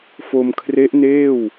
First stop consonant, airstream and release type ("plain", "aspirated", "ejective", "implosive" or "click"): aspirated